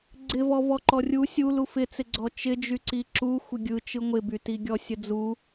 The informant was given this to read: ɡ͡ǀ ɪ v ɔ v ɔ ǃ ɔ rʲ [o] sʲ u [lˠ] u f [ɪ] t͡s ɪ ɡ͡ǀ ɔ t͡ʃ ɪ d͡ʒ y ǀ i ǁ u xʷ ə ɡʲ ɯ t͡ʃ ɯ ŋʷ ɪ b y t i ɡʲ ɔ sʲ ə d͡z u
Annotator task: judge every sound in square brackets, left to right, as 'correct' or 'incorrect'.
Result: incorrect, incorrect, correct

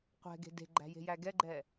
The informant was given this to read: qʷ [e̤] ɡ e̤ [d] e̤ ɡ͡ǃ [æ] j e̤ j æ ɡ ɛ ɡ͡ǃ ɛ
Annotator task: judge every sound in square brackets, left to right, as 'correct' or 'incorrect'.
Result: incorrect, correct, incorrect

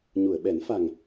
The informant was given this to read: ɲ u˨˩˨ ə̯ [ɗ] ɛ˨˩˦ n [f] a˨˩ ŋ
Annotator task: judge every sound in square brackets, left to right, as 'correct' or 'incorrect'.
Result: incorrect, correct

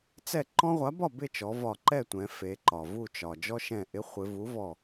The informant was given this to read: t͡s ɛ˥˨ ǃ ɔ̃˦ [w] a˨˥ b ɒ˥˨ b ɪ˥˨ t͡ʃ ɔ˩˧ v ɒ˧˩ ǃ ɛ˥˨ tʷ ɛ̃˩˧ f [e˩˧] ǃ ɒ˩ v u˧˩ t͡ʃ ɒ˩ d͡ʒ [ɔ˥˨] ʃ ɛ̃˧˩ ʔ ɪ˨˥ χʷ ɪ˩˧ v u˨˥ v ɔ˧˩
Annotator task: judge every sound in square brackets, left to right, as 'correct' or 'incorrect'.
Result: incorrect, correct, incorrect

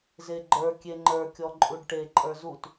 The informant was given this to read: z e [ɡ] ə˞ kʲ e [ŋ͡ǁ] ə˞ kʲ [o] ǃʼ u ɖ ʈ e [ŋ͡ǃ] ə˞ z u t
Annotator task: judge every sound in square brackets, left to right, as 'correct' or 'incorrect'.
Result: incorrect, incorrect, incorrect, incorrect

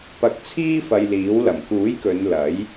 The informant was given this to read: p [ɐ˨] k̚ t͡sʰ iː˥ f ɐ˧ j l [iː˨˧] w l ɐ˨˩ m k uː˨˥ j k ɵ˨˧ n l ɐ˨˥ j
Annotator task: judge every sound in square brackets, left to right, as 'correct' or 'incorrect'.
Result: incorrect, incorrect

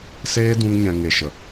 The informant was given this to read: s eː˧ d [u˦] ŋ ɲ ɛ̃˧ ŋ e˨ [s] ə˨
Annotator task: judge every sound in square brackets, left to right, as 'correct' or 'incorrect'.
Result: incorrect, incorrect

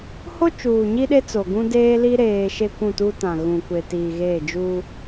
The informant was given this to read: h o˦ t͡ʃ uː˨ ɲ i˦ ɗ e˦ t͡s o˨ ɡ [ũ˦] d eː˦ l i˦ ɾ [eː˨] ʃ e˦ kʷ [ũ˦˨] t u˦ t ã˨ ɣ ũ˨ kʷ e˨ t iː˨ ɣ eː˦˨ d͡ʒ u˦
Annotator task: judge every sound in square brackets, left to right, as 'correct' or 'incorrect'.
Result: correct, correct, correct

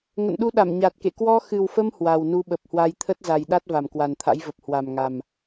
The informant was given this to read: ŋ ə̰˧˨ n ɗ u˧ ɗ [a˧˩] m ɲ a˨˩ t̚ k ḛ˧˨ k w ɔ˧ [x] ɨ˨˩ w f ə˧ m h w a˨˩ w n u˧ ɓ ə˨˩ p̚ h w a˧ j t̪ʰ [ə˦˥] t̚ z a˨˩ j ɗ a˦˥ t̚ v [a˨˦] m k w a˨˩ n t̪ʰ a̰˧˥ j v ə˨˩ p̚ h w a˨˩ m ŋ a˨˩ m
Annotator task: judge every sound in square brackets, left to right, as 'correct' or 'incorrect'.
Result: correct, correct, correct, incorrect

